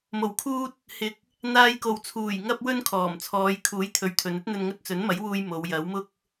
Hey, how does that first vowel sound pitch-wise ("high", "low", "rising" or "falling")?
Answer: low